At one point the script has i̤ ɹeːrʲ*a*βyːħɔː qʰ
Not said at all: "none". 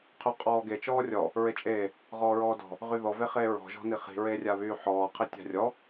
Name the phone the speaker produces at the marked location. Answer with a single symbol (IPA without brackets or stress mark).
a